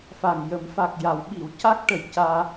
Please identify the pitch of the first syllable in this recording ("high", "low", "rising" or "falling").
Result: low